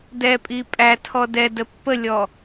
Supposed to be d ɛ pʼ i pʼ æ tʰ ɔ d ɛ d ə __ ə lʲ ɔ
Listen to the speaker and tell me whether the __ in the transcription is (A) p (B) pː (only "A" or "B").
B